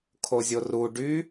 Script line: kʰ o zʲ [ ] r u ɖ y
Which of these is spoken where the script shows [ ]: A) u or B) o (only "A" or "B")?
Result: B